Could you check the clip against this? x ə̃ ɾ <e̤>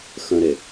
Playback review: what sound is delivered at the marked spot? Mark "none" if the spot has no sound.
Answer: e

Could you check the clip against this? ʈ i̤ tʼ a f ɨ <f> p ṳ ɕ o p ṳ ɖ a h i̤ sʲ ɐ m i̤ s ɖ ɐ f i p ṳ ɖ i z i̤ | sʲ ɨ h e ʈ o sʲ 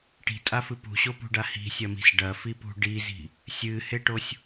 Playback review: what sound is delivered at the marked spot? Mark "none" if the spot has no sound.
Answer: none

